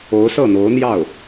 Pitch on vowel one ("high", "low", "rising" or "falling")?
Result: rising